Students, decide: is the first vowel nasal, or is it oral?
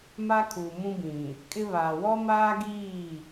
oral